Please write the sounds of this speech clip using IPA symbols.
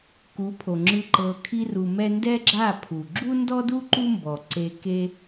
k u˨˦ pʰ o˨ ŋ͡ǁ ɯ˧ ǃ ɤ˧ kʰ i˦ r u˧ m ɛ˦ n d ɛ˦ ɡ͡ǁ a˦˨ pʰ u˨ ɡ͡ǁ u˦ n d ɔ˦ d u˦ ǃ u˦ m b ɔ˨ ǀ e˧ k e˦

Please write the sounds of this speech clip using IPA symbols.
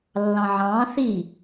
lː ɑ̃ ʕ ɑ̃ː θ i

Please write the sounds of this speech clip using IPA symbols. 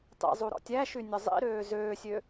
tˤ ḭ zˤ u ɾ ɔ̰ tʲ æ ʃ y nʲ ɔ zˤ ḭ ɾ øː z øː sʲ ø

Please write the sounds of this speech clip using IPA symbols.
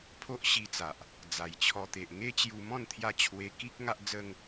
pʰ o˦ ʔ ɕ i˧ t͡s a˨ ʔ | d͡z a˨˩ j t͡ɕʰ ɔ˧ t̪ e˨ ʔ ŋ e˦ t͡ɕ j u˧ m ɔ̃˥˧ n t̪ʰ j a˥˧ t͡ɕʰ w e˧ k i˦ k̚ ŋ a˦ ʔ d͡z ə˦ ŋ

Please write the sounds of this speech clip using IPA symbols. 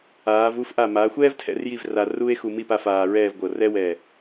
aː˩˧ v u˥˧ f ʔ a˧˩ m aː˩˧ xʷ ɛː˥ v tʰ ɛ̰˩˧ r j i˥˧ v r a˧ r u˥ e̯ x u˧ m i˥˧ p a˧ f aː˧ ɹ ɛː˥˧ v ɡʷ ɤ˧˩ r ɛ˥ w ɛ˧˩

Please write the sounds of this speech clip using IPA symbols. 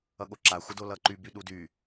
ʌ ɠ o ǁ a xʷ ə d o l ʌ ǃ y b y ɗ u d y

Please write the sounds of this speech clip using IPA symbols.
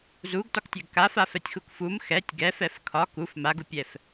z u ɡ t ɒ k tʲ ɛ ɡ k a f a f ɛ tʲ x u k f u m x ɛ tʲ ɡ ɛ f ɛ f kʰ ɒ k u f m a ɡ u pʲ ɛ f

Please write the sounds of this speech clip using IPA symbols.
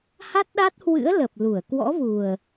h a˦˥ t̚ ɗ a˦˥ t̚ h w ɨ̰˧˥ ə̯ l ə˨˩ p̚ l u˧˩ ə̯ k w ɔ̰˧˥ v u˨˩ ə̯

